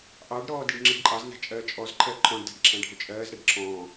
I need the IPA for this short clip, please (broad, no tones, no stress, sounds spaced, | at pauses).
ʔ ɑ ɖ ɾ ɔː d i ɖ ŋ͡ǁ i ɖ ǃʼ ɑ z n æ̤ t͡ʃʼ ɜː t͡ʃʼ ɔ z ǃʰ ɜ ǃʰ ɔ̃ ɖ d æ̤ ɖ ǁʰ æ̃ ɖʱ ʊ t͡ʃʼ ɜː z ɾ ɛ ɖ ǁʰ ɔ̃ː